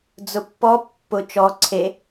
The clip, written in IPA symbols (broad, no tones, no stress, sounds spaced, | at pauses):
d͡z ʊ pː ɔ pː ʊ t͡ʃ ɔ ǀʰ e